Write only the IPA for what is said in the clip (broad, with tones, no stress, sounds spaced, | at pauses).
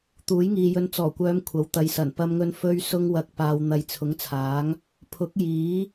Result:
t̪ uː˨˥ j ŋ iː˨ j ɵ˧ n t͡s ɔː˨˩ kʷ œː˨˧ m kʷʰ ɐ˨˥ w t̪ ɐ˨ j s ɐ˨˩ n p ɐ˧ m ŋ ɵ˧ n f ɵ˧ ɥ s ʊ˧ ŋ w ɐ˨ k̚ p aː˨ w n̪ ɐ˨ j t͡sʰ ʊ˨˥ ŋ t͡sʰ aː˨˥ ŋ | pʰ ʊ˨˥ k̚ j iː˨˥